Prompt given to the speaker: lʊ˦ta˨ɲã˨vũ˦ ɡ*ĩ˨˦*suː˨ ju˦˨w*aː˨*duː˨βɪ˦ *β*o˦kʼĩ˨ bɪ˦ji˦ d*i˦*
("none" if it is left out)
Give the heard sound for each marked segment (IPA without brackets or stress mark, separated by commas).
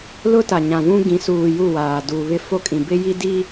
ĩ˨˦, aː˨, f, i˦